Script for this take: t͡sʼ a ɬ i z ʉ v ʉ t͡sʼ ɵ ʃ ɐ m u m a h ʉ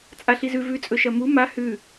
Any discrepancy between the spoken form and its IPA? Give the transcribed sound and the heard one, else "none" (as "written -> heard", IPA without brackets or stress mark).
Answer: none